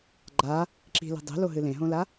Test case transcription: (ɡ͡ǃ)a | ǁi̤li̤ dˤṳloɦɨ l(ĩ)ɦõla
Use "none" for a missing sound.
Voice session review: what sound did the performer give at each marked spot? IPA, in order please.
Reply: ɡ͡ǃ, ẽ

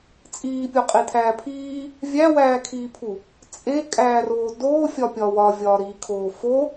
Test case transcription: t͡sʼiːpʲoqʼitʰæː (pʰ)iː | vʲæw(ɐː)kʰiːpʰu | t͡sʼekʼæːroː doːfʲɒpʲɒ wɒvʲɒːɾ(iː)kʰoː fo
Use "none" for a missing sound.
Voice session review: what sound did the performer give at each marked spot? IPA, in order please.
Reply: pʰ, æː, iː

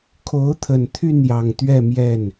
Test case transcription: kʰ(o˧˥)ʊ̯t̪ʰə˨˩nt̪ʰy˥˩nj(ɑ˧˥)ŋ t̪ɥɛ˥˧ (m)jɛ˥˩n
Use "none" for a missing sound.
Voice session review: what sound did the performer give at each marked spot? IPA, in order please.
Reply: o˧˥, ɑ˨˩, m

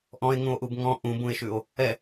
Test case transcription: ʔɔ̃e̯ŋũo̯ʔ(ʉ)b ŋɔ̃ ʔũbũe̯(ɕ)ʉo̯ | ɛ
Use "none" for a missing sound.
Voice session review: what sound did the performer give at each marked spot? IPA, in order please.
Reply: u, ʃ

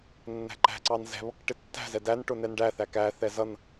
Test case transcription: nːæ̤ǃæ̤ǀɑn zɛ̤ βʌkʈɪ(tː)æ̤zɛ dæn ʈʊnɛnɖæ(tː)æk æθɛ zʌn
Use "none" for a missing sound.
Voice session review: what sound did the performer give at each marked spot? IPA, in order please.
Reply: tː, θ

